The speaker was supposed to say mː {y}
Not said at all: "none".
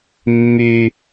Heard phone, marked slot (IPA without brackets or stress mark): y